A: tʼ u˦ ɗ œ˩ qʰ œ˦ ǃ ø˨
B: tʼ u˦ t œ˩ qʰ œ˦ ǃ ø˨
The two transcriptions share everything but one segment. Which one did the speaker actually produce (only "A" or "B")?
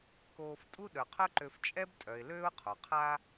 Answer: A